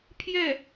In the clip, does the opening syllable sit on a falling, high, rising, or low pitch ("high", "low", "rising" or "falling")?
falling